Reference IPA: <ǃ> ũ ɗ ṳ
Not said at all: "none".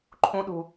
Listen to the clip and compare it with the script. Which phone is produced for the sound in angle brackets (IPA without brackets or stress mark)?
ǃʰ